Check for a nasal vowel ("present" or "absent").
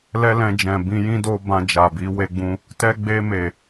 present